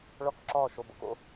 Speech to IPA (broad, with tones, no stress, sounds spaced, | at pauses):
ɭ ɔ˦˨ k ǁ ɔː˦˨ ʃ o˨ b o̰˦ k o̰˦